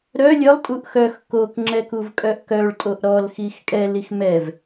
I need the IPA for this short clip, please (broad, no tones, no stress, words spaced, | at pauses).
ɾœ lʲœlˠtʼuʔ xœx kokŋ͡ǁɛ kuvkʼœʔkœɭtʼoʔ ɾɔlxix kʼɛlix mɛv